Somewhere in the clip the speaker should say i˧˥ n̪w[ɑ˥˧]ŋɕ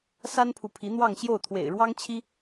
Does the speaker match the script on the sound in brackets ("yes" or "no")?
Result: yes